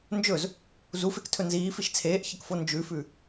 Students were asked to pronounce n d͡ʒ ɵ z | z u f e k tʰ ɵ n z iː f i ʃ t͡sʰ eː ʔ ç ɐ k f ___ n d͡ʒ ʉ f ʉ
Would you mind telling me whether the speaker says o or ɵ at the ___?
o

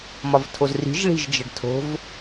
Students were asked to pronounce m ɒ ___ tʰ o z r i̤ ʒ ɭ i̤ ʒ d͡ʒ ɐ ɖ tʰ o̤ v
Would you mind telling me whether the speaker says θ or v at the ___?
v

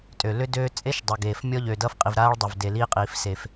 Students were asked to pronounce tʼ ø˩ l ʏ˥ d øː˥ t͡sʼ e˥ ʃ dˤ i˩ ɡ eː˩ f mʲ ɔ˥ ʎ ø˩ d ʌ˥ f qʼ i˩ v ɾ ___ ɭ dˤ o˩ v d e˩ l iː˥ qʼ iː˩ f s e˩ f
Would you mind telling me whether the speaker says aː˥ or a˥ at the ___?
aː˥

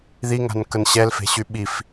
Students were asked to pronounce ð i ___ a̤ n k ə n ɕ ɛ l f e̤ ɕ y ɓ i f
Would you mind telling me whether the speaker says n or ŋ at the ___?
ŋ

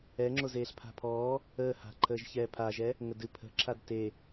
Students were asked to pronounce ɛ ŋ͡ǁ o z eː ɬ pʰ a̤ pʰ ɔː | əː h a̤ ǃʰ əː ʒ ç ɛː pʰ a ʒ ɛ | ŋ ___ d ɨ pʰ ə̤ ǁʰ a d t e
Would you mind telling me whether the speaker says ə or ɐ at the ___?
ə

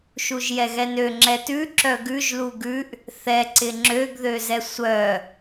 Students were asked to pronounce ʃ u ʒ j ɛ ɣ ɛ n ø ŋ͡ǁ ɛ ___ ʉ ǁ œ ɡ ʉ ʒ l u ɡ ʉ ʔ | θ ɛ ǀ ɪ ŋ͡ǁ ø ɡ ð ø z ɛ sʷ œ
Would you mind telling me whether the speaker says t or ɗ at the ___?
t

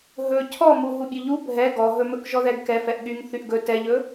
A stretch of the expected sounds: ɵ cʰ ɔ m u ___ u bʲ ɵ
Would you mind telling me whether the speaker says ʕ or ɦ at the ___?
ɦ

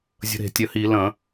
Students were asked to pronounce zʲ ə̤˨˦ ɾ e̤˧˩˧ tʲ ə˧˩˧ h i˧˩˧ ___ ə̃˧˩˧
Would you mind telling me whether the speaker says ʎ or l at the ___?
l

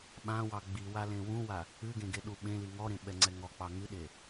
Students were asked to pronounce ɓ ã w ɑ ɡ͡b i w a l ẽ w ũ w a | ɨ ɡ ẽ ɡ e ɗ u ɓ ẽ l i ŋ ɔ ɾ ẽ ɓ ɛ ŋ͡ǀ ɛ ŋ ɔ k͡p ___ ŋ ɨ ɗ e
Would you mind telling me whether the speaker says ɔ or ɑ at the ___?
ɑ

